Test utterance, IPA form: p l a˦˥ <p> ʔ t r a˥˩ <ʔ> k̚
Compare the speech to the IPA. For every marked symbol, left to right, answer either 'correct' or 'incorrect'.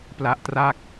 incorrect: none, incorrect: none

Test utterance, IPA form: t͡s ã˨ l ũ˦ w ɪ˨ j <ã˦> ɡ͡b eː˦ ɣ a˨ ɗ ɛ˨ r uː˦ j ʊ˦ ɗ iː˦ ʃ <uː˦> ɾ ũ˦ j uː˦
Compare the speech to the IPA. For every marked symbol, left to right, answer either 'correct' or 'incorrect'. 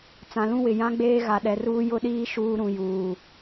correct, correct

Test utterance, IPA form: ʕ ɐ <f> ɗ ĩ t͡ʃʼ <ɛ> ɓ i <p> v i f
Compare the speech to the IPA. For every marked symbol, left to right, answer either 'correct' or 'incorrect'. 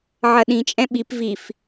incorrect: none, incorrect: ɛ̃, correct

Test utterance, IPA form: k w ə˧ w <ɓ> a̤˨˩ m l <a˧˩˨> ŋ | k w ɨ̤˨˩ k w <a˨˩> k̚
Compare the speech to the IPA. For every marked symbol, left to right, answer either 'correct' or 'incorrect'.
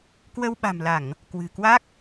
correct, correct, incorrect: a˦˥

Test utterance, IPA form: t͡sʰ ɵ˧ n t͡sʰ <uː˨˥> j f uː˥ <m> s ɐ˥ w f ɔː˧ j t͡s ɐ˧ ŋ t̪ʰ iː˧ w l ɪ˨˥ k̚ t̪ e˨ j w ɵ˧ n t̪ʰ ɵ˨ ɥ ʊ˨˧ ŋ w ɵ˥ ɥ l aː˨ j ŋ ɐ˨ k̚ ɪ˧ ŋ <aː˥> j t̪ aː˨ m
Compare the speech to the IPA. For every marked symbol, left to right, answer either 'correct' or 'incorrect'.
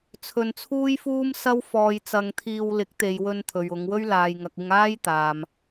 incorrect: uː˥, correct, correct

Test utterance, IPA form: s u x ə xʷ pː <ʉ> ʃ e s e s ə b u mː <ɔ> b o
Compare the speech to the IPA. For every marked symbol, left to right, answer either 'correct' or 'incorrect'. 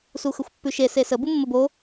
correct, incorrect: ə

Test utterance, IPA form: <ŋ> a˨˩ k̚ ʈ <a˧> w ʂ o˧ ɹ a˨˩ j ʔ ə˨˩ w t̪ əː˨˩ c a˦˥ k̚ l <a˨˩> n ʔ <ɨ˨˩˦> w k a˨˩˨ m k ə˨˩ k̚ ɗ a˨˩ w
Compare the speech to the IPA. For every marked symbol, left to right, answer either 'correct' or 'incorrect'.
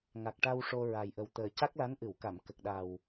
correct, correct, incorrect: a˧˥, incorrect: ɨ˨˩˨

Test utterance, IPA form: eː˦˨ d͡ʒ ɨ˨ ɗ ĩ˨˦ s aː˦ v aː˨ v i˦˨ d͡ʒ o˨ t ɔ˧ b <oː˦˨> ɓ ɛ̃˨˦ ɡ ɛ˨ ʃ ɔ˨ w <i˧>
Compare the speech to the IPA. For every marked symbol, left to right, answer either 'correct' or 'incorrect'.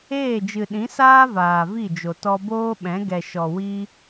incorrect: oː˦, correct

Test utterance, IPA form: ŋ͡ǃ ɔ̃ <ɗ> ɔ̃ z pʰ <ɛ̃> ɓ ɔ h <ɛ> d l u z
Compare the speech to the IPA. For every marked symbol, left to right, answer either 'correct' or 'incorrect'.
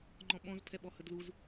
incorrect: ɓ, incorrect: ɛ, incorrect: ə

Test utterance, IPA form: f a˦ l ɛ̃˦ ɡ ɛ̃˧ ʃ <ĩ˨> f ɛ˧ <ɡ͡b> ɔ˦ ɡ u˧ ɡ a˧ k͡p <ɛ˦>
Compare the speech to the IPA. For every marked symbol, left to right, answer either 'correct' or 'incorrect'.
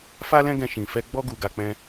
correct, correct, incorrect: ɛ̃˦

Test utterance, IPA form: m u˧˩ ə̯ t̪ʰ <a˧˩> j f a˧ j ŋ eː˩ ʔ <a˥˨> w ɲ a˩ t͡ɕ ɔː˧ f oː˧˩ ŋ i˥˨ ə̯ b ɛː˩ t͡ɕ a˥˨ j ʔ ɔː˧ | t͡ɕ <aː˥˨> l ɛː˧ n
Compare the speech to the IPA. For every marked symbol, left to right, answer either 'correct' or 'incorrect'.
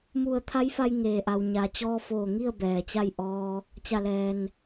incorrect: a˧˥, incorrect: a˩, incorrect: a˥˨

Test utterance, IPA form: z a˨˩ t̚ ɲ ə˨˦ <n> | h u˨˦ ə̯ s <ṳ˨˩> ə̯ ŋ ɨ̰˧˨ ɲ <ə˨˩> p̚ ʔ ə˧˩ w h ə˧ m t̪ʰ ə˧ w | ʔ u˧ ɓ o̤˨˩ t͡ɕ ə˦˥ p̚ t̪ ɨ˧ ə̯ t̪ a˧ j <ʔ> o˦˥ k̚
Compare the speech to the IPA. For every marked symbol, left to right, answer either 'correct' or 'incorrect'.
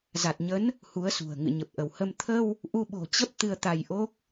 correct, correct, correct, correct

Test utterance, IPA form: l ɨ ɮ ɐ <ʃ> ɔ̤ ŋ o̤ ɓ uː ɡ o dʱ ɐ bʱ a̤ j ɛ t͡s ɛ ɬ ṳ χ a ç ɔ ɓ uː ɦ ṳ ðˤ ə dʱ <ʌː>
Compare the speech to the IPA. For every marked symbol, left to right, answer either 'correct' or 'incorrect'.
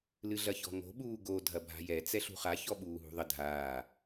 incorrect: ç, incorrect: aː

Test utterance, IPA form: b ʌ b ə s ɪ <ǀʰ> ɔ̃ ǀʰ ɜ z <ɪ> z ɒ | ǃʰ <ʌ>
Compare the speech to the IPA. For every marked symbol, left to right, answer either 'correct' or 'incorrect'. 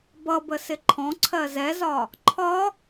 incorrect: ǃʰ, incorrect: ɛ, incorrect: ɒ

